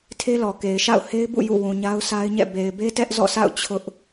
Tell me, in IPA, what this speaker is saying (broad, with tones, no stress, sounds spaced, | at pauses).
tʰ e˦ l ɔ˨ k e˨ ɪ̯ ʃ a̰˦˨ ʊ̯ h e˦ ɪ̯ b ṵ˦˨ j ṵ˦˨ w ũ˨ ɲ a˦ ʊ̯ sʰ a˦ ɪ̯ ɲ ɛ̰˦˨ b e˨ ɪ̯ b e˦ t ɛ˦ ʔ z ɔ̰˦˨ s a̰˦˨ ʊ̯ t͡ɕʰ ʊ˦ ʔ